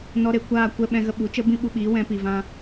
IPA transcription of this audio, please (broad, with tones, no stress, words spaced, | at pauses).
nɔ˧ɾe˨ kʷaː˦˨kʷɛ˧ ɓɛ̃˧ɣə˧ɓu˨˦ t͡ʃə˦bĩ˦ɓu˧ɓiː˨˦ wɛ̃˧pi˨vã˧